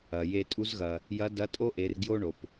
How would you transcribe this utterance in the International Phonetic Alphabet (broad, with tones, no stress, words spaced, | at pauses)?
ɐ˩je˧ tʼu˧˥zɣɐ˩ | jɐ˧˥dɐ˧˥ tʼo˥ʔe˩˧r ɡjo˥ɳo˩p